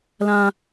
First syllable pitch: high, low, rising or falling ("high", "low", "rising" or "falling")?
high